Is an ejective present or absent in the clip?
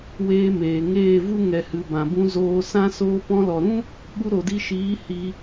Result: absent